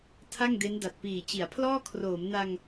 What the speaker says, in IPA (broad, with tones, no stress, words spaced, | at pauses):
tʰa˥˩ŋde˦˥n da˨˩t̚piː˨˩t͡ɕi˩˦a̯pʰlɔː˥˩ kʰroː˩˦mna˧ŋ